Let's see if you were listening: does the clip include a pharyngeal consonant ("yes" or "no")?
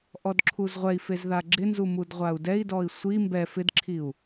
no